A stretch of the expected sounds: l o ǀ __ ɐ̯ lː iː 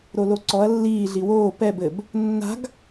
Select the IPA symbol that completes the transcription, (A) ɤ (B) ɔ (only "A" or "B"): B